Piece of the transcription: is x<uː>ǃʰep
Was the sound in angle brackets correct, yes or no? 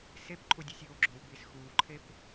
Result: yes